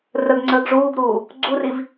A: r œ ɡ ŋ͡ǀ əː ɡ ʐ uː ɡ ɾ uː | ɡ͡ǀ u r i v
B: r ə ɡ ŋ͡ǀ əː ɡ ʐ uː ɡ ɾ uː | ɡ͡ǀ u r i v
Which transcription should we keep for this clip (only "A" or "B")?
B